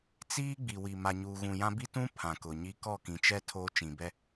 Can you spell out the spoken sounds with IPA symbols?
t͡s iː˦ ɡ͡b i˨ w i˨ m a˨ ɲ uː˨ ɣ ũ˨ j ã˦ b i˦ t ũ˦ pʰ ã˨ k ʊ˨ ɲ i˦ k ɔ˦˨ k ĩ˨ t͡ʃ ɛ˦ tʰ oː˦ t͡ʃ ĩ˨ b ɛ˦

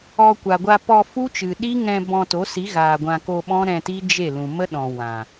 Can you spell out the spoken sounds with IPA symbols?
ɔ˧ kʷ a˨ ɡʷ a˧ p ɔ˧ f u˦ t͡ʃ ɨ˨ ɗ i˦ ŋ ɛ̃˧ b ɔ̃˧ t o˨˦ s i˨˦ ɣ aː˨ ɡʷ ã˧ k o˧ ɓ ɔ̃˦ ɾ ɛ̃˧ t i˦ d͡ʒ e˦˨ l ũ˨ m ə˦ ɗ ɔ̃˨ w ã˨

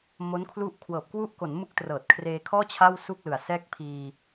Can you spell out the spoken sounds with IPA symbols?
m o˦˥ n kʰ l u˥˩ ʔ kʰ w ɤː˨˩ p̚ k w u˦˥ ʔ k o˩˦ n m ɯ˦˥ k̚ t r ɤː˨˩ t̚ kʰ r eː˧ kʰ ɔː˥˩ t͡ɕʰ a˥˩ w s u˥˩ k̚ l ɯ˨˩ a̯ s ɛː˦˥ k̚ pʰ iː˧

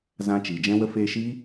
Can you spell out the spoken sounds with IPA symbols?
z ã˧ t͡ʃ i˨ d͡ʒ ɛ̃˧ w ə˧ f eː˧ ʃ i˦

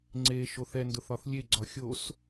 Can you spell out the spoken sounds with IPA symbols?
ŋ͡ǀ e ʃ o θ ɛ n d ʊ θ ɒ θ lʲ e ɡ͡ǀ ɒ xʲ o s

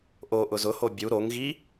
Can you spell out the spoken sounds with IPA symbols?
ʔ o ʔ ʊ z ʊ h o bʲ u ɾ o ŋ ɣ i

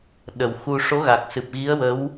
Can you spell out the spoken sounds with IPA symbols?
ɗ ə˨˩˨ w x u˧ ʂ o˧˥ ɣ a˨˩ k̚ s ɨ˨˩ p̚ ɣ i˧˥ ə̯ w ə˧˥ w

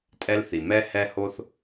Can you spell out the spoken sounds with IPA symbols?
tʼ ɛ˥ l θ i˩ m ɛ˥ h ɛ˥ h o˥ θ

